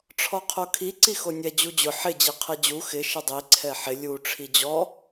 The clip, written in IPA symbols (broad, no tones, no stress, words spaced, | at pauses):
ʈ͡ʂʰɔqʰokʰi ǀixonʲɛ d͡ʑud͡ʑʊ ħɪ d͡ʑiqʰɛd͡ʑu xɪ ʃɪdˤi ǀʰɛħɪ lʲu ʈ͡ʂʰid͡ʑɔ